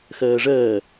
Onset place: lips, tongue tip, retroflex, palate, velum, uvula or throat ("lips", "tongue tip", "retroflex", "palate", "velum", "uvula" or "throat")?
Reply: velum